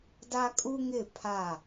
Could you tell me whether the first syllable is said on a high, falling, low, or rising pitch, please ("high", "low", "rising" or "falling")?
high